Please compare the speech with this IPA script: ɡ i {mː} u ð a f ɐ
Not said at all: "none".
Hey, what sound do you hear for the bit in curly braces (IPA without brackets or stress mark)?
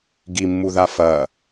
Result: mː